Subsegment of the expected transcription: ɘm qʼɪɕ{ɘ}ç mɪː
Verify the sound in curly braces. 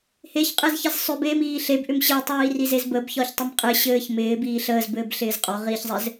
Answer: incorrect: ɘː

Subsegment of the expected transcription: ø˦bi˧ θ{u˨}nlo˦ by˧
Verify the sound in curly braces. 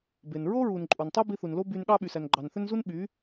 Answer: correct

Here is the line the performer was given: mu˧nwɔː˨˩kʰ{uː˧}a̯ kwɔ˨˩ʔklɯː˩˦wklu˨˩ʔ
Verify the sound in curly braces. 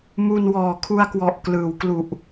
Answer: incorrect: u˧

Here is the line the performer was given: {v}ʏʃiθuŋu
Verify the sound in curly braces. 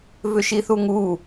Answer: correct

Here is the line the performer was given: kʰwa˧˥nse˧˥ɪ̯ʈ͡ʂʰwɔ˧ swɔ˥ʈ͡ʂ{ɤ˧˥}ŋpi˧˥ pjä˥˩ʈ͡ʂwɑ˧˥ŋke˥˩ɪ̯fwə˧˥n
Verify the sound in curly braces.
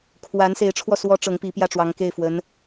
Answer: correct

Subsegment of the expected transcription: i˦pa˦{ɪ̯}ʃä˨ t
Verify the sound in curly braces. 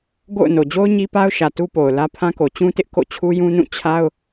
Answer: incorrect: ʊ̯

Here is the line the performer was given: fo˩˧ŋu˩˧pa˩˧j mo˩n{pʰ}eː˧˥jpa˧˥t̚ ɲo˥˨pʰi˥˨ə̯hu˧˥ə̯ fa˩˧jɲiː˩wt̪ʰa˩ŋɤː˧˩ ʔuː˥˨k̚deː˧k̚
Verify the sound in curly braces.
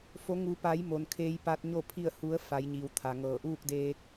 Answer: incorrect: kʰ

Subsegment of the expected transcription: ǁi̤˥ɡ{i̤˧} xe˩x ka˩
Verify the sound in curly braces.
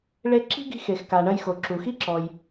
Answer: correct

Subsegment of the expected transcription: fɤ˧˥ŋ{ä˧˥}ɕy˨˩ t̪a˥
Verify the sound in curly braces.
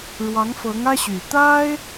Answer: incorrect: ä˥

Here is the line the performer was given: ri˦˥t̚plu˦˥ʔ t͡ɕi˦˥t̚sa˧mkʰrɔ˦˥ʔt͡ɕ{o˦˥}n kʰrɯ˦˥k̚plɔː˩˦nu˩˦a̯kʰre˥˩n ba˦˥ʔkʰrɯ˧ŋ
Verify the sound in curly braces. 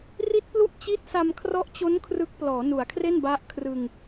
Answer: correct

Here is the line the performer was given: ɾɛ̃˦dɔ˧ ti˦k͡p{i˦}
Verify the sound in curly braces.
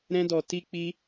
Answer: correct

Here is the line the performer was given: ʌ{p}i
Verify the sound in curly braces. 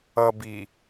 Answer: incorrect: b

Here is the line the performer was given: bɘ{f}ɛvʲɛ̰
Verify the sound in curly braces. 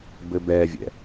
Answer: incorrect: b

